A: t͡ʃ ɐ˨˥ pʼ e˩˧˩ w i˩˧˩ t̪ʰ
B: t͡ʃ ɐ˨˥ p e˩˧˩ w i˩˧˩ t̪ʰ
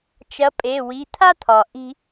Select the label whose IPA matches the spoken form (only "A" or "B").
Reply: A